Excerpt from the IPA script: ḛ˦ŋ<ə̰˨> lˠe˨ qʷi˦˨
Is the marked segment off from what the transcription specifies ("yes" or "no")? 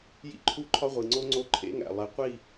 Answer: yes